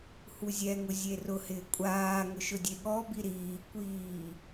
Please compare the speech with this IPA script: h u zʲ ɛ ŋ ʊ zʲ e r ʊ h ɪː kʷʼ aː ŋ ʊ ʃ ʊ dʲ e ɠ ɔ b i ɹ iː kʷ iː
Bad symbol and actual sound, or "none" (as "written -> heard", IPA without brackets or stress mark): ɹ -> ɾ